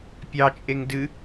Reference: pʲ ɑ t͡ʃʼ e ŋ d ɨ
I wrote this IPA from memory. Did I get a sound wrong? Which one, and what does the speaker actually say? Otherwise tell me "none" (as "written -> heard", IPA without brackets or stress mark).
none